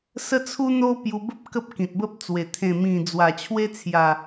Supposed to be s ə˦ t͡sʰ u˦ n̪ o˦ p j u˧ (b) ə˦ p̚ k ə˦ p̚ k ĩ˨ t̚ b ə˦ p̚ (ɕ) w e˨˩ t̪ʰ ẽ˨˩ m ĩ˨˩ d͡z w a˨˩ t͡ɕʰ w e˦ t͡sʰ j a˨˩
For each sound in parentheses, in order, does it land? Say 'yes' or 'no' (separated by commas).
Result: yes, no